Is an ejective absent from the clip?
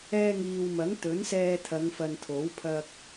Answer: yes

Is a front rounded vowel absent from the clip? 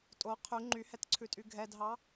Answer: no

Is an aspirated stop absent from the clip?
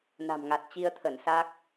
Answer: no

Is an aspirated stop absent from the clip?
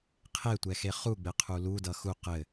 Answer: no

